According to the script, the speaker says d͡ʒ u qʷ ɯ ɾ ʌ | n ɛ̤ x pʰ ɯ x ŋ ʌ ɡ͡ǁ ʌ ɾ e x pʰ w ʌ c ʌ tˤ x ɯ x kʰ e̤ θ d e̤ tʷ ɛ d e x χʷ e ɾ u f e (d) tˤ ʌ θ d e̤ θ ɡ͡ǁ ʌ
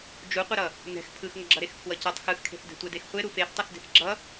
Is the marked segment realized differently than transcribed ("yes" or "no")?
yes